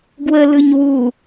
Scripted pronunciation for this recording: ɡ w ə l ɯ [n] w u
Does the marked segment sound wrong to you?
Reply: yes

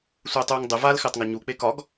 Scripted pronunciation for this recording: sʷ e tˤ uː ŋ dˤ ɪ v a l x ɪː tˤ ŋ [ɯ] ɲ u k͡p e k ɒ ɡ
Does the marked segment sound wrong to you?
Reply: yes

